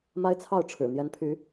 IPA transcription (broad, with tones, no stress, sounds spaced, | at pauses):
m a˦ ɪ̯ t͡sʰ ɑ˥˨ ʊ̯ ʈ͡ʂʰ ɻ̩˨˩ n̪ j ɛ˨˦ n pʰ y˨˦